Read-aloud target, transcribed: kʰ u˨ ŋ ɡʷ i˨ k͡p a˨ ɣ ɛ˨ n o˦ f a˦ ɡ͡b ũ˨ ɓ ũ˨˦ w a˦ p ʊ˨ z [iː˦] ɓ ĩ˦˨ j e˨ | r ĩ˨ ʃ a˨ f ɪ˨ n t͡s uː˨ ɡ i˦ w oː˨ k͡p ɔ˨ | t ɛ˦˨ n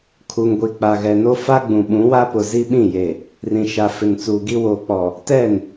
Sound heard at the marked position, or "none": i˦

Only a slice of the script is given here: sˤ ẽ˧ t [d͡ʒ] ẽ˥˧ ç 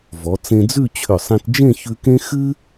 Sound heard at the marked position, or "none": d͡ʒ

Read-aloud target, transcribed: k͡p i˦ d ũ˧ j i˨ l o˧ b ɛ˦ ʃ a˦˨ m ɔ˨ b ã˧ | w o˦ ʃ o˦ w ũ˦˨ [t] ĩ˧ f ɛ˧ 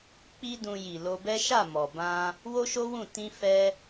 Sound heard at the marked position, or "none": t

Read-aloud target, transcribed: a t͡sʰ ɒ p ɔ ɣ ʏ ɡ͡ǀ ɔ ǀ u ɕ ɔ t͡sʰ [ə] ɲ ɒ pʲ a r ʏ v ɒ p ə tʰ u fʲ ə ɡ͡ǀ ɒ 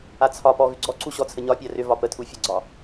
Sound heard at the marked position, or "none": ə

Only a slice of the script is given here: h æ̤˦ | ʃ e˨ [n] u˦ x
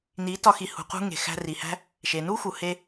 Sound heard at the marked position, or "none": n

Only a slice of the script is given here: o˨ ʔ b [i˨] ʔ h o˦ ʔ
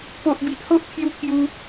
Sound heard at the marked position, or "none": i˨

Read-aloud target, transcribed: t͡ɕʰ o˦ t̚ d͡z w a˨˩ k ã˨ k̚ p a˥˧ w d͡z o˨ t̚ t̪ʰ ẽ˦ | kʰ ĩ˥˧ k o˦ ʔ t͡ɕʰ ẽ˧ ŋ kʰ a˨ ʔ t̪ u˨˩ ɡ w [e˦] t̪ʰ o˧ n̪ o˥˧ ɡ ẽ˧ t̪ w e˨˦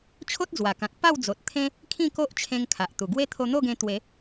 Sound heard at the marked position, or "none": e˦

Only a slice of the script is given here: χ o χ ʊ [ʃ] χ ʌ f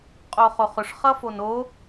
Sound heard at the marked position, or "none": ʂ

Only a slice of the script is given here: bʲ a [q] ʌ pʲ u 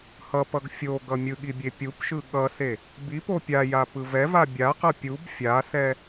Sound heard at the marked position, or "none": q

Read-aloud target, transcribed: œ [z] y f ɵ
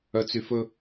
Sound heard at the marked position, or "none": t͡s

